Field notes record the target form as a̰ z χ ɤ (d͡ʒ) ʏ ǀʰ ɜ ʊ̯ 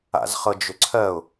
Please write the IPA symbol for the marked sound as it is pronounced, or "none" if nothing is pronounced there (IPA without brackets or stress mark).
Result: d͡ʒ